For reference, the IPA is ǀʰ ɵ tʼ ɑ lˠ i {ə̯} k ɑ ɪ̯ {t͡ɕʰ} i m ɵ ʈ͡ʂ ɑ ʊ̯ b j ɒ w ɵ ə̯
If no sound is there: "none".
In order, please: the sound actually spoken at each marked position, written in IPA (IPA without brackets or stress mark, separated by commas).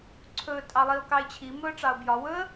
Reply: ʊ̯, t͡ɕʰ